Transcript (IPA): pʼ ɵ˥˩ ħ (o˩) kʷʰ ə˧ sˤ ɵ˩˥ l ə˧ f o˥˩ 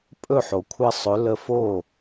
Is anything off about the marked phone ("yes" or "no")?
no